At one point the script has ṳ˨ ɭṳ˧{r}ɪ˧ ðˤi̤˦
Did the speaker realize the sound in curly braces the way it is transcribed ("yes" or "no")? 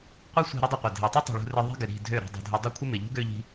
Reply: yes